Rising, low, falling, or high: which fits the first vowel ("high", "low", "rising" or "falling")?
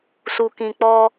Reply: low